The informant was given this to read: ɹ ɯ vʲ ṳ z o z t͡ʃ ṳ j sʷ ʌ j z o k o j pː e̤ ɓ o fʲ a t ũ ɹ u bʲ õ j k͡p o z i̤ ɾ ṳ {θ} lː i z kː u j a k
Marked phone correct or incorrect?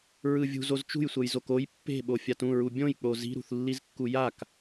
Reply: correct